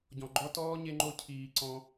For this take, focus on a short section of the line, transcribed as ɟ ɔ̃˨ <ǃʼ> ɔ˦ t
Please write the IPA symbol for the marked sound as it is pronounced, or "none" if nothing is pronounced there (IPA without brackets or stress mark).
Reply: ɡ͡ǃ